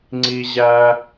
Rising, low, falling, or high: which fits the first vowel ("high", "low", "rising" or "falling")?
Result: high